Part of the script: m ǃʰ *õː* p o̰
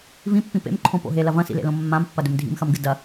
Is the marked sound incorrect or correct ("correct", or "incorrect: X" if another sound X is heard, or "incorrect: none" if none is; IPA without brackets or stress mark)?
incorrect: õ